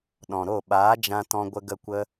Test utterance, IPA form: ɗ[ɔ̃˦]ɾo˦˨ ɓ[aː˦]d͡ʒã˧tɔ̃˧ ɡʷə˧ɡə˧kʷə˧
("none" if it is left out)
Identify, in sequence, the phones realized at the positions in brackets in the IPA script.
ɔ̃˨, aː˨˦

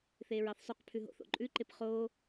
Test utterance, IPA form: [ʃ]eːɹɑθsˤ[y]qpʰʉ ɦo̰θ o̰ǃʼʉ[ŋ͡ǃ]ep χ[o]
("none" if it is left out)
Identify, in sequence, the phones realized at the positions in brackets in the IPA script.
θ, y, ǃ, oː

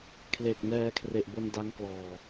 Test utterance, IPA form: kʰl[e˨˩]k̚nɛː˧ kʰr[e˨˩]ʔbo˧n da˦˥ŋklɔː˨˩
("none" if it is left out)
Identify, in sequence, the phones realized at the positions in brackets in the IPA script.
e˨˩, e˨˩

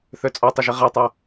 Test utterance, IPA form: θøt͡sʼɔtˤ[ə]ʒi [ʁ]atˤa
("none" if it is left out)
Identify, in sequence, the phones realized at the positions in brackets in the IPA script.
ə, ʁ

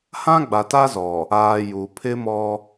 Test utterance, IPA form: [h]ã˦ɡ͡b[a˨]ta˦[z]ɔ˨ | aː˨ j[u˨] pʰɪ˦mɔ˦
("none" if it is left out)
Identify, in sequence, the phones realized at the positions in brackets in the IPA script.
h, a˨, z, u˨

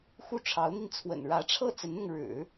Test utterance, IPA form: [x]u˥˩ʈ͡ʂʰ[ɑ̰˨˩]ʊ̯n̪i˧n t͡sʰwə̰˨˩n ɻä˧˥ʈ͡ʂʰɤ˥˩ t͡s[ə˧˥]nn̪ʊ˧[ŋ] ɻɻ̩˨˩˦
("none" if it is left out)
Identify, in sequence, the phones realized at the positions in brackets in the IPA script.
x, ɑ˧˥, ə˧˥, ŋ

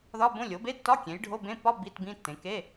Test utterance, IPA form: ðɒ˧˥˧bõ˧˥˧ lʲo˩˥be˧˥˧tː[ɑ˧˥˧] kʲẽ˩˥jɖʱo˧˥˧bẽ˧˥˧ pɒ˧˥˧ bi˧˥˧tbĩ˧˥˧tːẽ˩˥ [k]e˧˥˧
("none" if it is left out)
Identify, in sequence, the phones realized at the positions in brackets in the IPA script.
ɒ˧˥˧, k

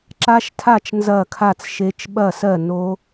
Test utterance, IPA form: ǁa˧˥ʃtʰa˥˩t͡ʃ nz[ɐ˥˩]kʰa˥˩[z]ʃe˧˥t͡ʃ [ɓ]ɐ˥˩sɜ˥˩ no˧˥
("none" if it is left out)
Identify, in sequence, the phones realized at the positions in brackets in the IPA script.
ɐ˥˩, t͡s, ɓ

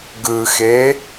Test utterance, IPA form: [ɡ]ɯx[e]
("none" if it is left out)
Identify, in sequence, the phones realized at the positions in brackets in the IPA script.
ɡ, e

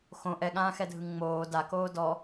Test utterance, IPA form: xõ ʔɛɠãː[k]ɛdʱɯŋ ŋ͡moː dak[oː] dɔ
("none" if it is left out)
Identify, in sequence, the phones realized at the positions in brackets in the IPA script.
x, oː

